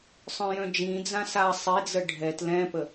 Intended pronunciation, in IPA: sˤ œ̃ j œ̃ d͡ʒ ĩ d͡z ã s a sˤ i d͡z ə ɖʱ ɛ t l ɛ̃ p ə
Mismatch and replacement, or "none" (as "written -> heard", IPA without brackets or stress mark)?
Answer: none